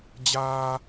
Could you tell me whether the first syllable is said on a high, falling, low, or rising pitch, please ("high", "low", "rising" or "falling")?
high